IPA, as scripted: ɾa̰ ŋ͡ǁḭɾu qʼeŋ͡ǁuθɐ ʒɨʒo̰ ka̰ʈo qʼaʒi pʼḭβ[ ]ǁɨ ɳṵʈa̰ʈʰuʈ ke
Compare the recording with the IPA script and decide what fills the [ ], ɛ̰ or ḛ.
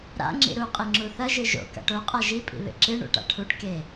ḛ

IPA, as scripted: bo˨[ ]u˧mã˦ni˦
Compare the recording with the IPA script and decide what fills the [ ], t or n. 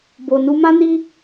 n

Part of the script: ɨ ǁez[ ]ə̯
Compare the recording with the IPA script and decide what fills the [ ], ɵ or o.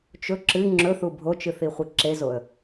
o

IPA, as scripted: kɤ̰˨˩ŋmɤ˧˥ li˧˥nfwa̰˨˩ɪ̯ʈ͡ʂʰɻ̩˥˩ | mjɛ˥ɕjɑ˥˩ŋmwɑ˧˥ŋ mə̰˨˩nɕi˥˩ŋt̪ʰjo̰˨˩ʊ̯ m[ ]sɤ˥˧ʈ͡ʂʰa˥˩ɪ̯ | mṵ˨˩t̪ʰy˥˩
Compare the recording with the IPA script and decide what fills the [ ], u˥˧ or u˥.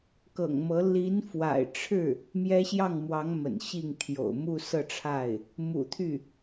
u˥˧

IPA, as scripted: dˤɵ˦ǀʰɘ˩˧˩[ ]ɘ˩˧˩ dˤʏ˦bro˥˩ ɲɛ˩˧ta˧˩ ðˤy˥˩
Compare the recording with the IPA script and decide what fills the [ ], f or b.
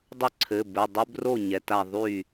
b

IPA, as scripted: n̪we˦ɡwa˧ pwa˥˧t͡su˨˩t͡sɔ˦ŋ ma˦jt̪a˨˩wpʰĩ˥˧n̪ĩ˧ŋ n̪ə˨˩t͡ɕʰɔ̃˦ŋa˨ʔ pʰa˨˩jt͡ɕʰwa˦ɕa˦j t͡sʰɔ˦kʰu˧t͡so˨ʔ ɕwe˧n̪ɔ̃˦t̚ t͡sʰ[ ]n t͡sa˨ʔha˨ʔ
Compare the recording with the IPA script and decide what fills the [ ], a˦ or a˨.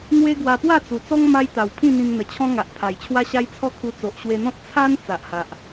a˦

